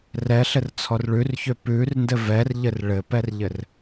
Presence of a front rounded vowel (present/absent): present